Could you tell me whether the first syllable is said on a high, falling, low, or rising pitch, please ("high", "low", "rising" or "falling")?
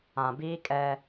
low